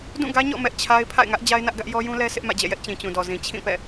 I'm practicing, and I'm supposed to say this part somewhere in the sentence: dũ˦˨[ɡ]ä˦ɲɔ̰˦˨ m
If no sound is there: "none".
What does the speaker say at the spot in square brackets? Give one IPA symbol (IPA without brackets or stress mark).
ɡ